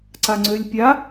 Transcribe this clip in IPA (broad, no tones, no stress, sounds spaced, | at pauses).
ǀ a ŋ͡ǀ ø lʲ pʲ a